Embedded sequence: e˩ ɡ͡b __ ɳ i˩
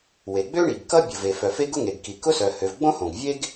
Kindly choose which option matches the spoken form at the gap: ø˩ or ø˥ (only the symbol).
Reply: ø˥